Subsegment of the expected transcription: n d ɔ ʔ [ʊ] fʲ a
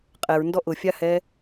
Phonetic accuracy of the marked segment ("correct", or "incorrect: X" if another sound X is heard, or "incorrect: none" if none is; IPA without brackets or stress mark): correct